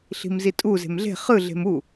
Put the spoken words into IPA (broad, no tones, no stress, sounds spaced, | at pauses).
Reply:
ɬ i̤ m z i tʼ u z e̤ m ɮ e̤ χ ɯ ɮ e̤ m u